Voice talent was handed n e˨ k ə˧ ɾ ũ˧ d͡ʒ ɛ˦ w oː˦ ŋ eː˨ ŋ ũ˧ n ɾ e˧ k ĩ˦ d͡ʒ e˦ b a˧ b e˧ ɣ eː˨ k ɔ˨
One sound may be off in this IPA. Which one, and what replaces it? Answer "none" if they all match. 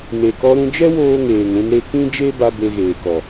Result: ə˧ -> ɔ˧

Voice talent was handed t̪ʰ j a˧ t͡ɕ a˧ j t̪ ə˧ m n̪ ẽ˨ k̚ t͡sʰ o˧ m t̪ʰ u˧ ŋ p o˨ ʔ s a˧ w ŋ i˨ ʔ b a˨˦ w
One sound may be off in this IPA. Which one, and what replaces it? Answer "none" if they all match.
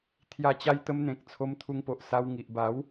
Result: none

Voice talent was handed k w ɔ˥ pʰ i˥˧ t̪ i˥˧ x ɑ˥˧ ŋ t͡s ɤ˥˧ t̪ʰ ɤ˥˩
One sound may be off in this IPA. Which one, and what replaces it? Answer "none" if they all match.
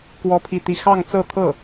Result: none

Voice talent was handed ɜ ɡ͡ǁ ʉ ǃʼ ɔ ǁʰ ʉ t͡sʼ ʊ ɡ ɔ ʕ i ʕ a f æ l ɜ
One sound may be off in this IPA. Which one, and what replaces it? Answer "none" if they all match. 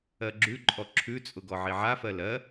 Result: æ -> ɜ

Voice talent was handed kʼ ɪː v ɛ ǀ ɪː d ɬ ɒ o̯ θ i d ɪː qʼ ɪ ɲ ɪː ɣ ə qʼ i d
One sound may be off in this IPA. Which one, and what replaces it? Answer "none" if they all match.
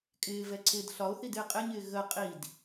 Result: none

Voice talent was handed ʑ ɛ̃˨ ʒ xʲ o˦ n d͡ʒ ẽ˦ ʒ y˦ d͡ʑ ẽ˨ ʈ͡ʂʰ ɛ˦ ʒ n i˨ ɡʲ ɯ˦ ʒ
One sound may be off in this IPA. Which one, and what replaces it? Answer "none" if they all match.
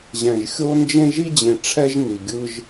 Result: y˦ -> i˦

